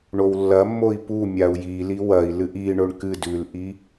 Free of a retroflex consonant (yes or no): no